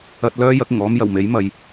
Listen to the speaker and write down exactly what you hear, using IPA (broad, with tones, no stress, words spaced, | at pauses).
ɐ˧t̚lœː˥ jɐ˨˥k̚ɪ˨˩ŋɔː˥m jɐ˨˩wme˨˥jmɐ˨j